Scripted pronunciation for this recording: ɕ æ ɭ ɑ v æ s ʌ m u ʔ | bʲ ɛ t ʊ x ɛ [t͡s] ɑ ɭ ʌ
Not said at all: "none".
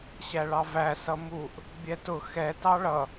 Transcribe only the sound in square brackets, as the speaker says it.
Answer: t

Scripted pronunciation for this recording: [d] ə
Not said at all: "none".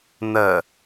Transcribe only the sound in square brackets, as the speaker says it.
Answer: n̪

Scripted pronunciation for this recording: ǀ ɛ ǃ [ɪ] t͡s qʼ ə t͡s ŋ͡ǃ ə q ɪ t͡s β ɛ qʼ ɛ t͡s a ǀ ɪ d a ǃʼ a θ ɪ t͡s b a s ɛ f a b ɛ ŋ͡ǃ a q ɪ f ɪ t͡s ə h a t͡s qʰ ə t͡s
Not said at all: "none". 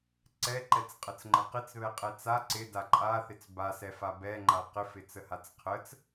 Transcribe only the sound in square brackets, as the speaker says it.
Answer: ɛ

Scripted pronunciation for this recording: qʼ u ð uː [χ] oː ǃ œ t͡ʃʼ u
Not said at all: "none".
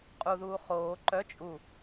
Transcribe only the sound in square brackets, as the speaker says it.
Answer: χ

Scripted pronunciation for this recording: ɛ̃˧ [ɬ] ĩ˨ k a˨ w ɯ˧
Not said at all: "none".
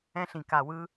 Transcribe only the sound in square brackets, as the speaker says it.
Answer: ɬ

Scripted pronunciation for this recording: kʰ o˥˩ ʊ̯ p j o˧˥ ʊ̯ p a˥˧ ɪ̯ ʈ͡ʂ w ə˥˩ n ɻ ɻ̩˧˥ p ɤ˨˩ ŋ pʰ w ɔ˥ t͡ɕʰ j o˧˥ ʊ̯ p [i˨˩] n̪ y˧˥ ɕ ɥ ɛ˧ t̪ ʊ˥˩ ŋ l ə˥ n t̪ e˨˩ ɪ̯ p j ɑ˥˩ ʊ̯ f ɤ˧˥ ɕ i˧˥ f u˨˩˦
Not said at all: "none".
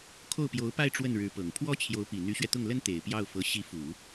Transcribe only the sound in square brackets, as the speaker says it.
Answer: i˨˩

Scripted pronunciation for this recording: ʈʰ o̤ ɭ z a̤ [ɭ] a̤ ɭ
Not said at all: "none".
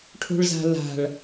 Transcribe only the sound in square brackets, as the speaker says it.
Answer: l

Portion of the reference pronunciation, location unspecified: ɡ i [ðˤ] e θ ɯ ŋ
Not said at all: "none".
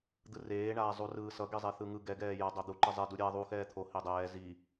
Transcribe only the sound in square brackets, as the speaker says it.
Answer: zˤ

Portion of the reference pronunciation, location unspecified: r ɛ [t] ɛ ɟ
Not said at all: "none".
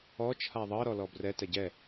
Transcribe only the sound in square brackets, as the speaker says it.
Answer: t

